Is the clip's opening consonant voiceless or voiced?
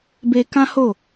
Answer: voiced